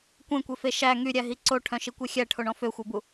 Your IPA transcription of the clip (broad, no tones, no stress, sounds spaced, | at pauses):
kʷ ẽ kʷ e f e ʃ æ ŋ y ɾʲ æ ɦ i ǀ o ʈʰ œ̃ ʃ i kʷ e xʲ æ ʈʰ o ɳ ɔ̃ f ø xʷ e b u